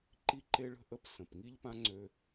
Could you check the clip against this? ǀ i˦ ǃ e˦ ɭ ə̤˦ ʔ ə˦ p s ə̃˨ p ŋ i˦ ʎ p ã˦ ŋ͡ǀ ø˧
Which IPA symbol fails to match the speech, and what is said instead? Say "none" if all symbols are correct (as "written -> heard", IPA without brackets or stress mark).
ǀ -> ǃ